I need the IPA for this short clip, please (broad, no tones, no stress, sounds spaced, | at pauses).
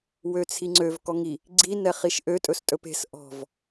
w ø t͡sʰ i ŋ͡ǀ ø v k ɔ ŋ i | ɡ͡ǀ i n ɛ χ i ʃ ʔ ø tʼ ɵ s tʼ ɵ p e̤ s ʔ ɔ̤ v